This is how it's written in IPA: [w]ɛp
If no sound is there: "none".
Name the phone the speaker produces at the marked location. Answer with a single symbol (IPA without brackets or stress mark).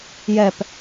j